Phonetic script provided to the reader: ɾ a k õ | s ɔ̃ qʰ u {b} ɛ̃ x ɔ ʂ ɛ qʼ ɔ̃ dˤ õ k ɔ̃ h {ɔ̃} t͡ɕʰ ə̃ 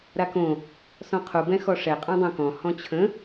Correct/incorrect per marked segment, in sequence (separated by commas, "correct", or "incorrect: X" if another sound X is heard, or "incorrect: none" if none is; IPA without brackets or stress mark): correct, correct